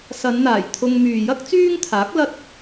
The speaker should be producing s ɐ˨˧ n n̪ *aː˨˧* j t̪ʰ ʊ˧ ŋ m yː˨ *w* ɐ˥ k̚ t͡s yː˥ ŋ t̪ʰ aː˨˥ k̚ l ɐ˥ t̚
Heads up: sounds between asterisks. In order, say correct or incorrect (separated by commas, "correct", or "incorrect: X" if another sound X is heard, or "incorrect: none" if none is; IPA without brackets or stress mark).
incorrect: aː˨˩, incorrect: j